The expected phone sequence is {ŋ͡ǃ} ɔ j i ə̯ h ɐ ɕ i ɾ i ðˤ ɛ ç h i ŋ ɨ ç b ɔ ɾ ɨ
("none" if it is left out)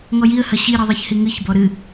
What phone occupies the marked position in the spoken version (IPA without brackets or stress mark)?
ŋ